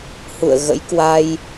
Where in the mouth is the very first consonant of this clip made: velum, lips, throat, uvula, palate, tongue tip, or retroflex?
throat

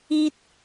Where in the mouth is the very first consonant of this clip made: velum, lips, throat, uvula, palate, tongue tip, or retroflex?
tongue tip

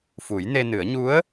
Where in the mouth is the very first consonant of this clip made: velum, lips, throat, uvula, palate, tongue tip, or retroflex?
lips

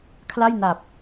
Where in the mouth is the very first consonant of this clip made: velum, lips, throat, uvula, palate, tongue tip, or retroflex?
velum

